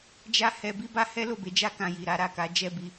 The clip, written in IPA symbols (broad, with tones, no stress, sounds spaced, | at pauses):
d͡ʒ a˦ h ɛ˧ b i˦ b a˦ h ɛ˦ l o˦˨ b e˨˦ d͡ʒ a˦ k ã˧ j i˨ ɾ a˨˦ ɾ a˦˨ k a˨˦ d͡ʒ ɛ˦˨ b i˧